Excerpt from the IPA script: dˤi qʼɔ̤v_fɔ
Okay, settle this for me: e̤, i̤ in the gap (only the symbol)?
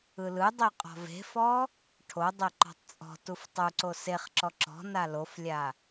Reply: e̤